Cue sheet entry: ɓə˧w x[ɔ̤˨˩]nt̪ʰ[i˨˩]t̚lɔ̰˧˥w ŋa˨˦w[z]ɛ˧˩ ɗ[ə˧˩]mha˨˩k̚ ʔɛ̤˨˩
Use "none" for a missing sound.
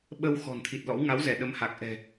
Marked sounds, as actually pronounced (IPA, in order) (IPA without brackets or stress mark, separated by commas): ɔ̤˨˩, i˨˩, z, ə˨˦